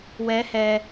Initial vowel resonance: oral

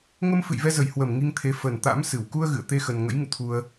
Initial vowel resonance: oral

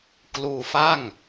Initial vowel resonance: oral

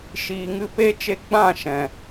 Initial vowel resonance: oral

